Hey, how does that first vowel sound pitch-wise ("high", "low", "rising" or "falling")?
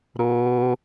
high